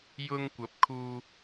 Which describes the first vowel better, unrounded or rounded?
rounded